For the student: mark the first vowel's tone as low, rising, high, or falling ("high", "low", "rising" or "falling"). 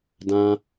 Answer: high